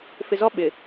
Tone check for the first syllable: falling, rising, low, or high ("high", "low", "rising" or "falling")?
low